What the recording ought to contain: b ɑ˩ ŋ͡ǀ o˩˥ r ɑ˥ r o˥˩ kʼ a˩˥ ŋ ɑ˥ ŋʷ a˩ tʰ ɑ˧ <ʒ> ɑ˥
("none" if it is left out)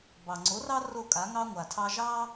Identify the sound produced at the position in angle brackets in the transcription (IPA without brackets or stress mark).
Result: ʒ